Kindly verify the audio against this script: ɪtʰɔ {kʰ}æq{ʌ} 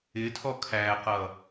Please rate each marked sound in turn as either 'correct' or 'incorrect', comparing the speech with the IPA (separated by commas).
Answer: correct, correct